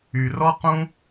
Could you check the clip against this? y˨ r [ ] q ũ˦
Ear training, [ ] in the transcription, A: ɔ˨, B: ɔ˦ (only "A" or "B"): B